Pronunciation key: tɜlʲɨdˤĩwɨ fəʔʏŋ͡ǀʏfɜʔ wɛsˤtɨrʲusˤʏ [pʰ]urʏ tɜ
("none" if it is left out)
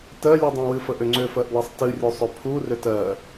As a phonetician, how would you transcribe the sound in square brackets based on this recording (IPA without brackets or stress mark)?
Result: pʰ